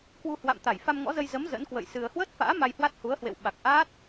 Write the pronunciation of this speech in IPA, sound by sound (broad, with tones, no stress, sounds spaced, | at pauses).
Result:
k w u˧ h w a̰˧˨ m t̪ a˧˩ j f a˧ m ŋ ɔ̰˧˥ z ə˧ j z ə˨˦ m z ə̰˧˥ n k w ə̰˧˨ j s ɨ˧ ə̯ h w əː˦˥ t̚ f a̰ː˧˥ m a˧ j h w a˦˥ t̚ h u˨˦ ə̯ h w ḛ˧˨ w ɓ a˨˩ k̚ ʔ a˦˥ t̚